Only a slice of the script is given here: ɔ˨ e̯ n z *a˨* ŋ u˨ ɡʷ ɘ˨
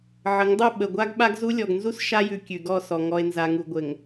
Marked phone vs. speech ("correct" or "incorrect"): correct